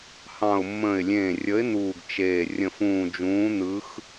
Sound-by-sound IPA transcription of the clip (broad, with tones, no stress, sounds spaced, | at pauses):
h ɑ̃˨˩ ʊ̯ mː ə̃ː˨˩ ɪ̯ lʲ ẽː˨˩ rʲ ə˨˦ ɪ̯ n̪ uː˨˩ ɡ t͡ʃ eː˨˩ rʲ ə̃˨˩ f ũː˨˩ d͡ʒ ũː˨˦ n̪ ɯ˨˦ x